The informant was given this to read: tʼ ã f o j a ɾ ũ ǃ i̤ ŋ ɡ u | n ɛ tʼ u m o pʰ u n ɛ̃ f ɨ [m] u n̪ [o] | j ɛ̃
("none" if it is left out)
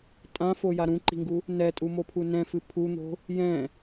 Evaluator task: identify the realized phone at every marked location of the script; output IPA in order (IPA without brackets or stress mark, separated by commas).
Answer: pʰ, o̤